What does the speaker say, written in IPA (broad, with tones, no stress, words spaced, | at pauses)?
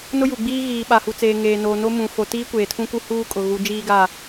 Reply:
nʊ˦ju˨ɡ͡biː˦ ɣiː˨ɓa˨hu˨t͡seː˨ ŋeː˨noː˨ no˦mũ˨ fo˨tiː˦kʷeː˨ tʰũ˦ku˦ huː˦ kʼʊ˨ɣu˨˦ d͡ʒiː˦ɡa˦˨